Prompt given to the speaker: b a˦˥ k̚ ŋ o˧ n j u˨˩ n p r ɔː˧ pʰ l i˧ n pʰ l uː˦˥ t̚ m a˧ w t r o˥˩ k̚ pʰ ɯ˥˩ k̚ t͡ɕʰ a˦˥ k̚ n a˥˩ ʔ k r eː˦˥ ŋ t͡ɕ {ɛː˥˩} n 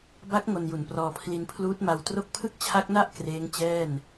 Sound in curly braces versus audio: correct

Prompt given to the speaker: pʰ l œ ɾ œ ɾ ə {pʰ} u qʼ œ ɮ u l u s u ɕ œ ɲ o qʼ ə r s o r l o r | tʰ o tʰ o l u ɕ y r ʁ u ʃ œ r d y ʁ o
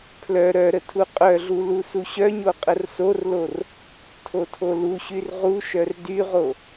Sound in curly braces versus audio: incorrect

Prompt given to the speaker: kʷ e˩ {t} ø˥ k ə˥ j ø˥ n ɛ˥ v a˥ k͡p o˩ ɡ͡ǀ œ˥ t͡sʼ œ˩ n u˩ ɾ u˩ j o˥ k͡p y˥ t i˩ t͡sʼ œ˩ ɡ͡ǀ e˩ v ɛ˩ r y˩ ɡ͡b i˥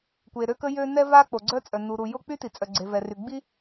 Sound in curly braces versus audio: incorrect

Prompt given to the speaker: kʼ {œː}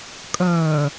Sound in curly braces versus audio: correct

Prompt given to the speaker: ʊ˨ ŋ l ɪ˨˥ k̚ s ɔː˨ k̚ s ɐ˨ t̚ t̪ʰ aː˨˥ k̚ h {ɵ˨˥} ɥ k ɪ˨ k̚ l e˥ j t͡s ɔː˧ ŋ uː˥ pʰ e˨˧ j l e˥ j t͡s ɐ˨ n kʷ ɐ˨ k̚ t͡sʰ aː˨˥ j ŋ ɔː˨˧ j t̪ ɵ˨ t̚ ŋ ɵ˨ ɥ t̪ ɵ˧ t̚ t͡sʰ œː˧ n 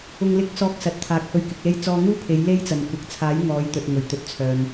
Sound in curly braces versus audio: incorrect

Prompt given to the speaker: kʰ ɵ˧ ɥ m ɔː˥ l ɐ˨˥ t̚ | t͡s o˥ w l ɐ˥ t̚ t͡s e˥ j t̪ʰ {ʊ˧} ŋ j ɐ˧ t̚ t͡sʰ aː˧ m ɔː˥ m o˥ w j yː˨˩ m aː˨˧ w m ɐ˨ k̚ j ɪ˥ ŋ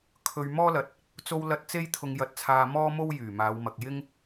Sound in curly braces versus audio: correct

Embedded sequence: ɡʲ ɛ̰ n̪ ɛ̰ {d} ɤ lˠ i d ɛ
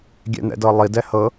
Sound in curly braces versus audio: correct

